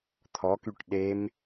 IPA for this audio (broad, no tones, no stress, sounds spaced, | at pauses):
t̪ʰ ɔ k y ʈ ɗ e m